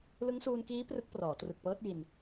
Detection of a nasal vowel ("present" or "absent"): absent